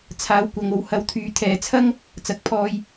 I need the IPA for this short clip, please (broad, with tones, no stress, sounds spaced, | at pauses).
t͡sʰ aː˨˥ w kʷ ɐ˨˧ ŋ o˨ w h ɐ˧ w t̪ʰ yː˨˧ t̪ʰ ɛː˨ t͡sʰ ɐ˥ ŋ | t͡s ɐ˧ k̚ pʰ ɔː˥ j